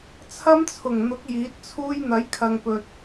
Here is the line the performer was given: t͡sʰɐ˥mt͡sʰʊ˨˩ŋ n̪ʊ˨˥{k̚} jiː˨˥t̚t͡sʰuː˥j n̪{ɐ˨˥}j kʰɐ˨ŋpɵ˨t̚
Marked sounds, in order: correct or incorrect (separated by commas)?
correct, correct